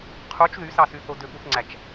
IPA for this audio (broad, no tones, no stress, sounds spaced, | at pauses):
qʰ u t͡ʃ ð y s ɑ s y θ o d ø p u θ ŋ͡ǀ æ t͡ʃ